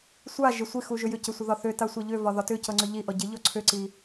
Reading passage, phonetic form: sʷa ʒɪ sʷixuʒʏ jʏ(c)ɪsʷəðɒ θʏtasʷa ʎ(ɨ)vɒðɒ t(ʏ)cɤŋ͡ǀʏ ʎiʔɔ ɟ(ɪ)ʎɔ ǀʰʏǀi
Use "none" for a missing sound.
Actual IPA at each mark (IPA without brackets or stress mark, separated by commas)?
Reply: c, ʏ, ʏ, ɪ